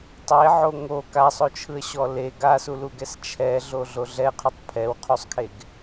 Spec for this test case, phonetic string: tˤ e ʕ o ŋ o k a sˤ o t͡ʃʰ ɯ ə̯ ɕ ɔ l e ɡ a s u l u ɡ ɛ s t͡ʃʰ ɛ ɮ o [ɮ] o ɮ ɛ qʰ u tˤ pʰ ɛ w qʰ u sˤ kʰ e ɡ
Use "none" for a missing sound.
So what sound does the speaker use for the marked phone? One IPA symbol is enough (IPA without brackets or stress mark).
ɮ